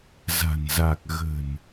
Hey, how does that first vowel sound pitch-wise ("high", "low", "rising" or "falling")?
low